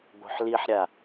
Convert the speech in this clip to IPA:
ɡ͡bo̤ħliħɾʲa

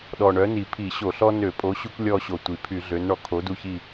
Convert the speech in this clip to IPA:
ɗɔ˨˩ɳœ˨˥ni˨˩pʰi˧˩˧ ɕo˧˩˧ ɬɔ˦nø˧˩˧pʼo˨˥ɕu˦k lʲɔ˦˨ ɕo˨˩ tʷi˨˩ pʰy˧˩˧ɮø˨˥nɳɔ˨˥ kʰo˨˥du˦˨ çi˦˨

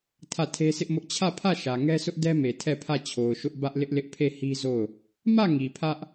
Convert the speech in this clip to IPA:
tʰä˦˨tʰe˦sɪ˦ʔmʊ˦ʔ t͡ɕʰä˦˨pʰä˦˨ ʃä˨ŋɛ˦sʊ˦ʔdɛ˦ me˨tʰɛ˦˨pʰä˦˨t͡ɕʰo˨ʊ̯ ʃʊ˦ʔ bä˦ʔlɪ˦ʔlɪ˦ʔ pʰe˦˨ hi˦zo˦˨ʊ̯ | mä˦˨ ŋi˨pʰä˦ʔ

